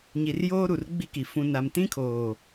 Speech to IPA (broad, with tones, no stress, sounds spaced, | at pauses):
ɲ i˨ r j oː˦ ɾ u˨ r ɡ͡b i˦ k i˨ f ũ˨ n a˨ m t ĩ˦ kʰ oː˨